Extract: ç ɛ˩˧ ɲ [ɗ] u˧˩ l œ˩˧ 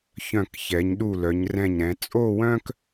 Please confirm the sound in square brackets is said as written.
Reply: yes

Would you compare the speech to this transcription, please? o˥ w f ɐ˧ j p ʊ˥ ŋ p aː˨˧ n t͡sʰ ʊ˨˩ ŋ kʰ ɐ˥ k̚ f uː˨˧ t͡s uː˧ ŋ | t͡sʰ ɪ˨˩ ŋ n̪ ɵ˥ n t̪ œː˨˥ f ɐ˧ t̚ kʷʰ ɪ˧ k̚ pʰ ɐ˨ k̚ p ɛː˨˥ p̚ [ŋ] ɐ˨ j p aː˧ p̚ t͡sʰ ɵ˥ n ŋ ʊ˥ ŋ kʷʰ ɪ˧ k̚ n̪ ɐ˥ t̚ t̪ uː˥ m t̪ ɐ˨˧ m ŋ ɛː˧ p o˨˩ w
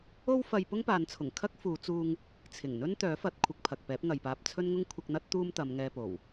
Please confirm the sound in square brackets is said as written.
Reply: yes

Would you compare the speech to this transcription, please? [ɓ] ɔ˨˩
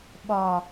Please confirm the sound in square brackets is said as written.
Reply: yes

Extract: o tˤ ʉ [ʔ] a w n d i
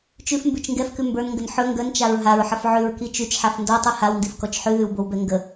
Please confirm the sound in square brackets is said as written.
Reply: no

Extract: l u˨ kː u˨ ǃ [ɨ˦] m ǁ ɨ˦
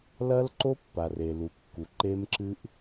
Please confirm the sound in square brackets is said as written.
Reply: no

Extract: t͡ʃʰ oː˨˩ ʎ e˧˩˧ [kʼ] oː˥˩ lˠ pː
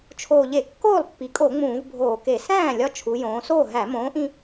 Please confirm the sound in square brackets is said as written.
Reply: no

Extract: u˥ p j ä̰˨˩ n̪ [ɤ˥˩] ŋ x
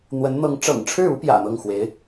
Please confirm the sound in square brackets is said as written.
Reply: yes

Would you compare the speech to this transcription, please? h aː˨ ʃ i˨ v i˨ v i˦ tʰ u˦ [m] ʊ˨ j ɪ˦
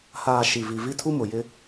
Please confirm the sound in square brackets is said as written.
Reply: yes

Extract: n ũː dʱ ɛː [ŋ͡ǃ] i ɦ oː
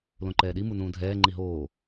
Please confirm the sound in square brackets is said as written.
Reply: yes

